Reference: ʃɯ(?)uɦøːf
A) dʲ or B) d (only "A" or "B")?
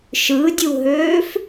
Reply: A